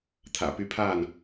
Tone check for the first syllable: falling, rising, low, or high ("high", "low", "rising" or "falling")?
low